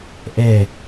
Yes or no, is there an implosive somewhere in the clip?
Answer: no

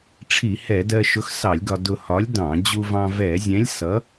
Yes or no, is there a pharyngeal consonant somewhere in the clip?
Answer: no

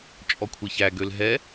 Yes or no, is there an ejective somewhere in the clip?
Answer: yes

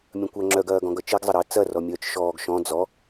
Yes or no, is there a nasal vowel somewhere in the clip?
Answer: yes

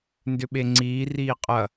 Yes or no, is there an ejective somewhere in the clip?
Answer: yes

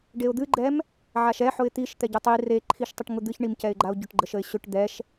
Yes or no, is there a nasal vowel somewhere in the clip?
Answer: no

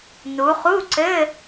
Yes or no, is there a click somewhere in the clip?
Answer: yes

